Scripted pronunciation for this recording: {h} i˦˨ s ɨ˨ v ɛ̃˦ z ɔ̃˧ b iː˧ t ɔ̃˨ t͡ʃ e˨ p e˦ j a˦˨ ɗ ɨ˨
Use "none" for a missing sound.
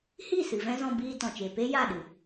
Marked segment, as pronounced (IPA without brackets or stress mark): h